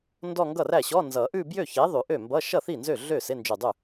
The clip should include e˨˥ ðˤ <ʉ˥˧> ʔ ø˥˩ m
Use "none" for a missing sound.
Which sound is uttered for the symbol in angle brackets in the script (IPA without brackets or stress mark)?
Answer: ʉ˨˩˦